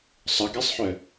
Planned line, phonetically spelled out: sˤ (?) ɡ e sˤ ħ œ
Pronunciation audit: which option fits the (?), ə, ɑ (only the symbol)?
ə